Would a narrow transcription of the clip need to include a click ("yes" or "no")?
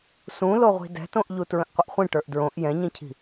no